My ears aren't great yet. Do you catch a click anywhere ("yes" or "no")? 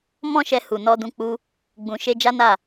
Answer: no